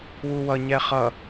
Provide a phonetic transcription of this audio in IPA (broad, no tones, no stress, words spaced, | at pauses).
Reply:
wuwʌ ɲɛχʌ